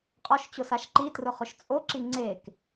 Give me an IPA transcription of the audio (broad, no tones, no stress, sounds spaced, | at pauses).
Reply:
qʼ ɔ ʃ t͡ɕ ʊ s a ʃ ǃ i t r ʊ χ ʊ ʃ t͡sʼ o ǁ i ŋ͡ǀ e k